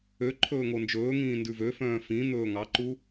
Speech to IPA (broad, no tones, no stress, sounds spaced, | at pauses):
ø ǃʰ ɵː ŋ o n d͡ʒ ɵː ŋ ĩː n d ʉ v ø f œ̃ː f ĩ n̪ ɵː ŋ ɑ ǃ u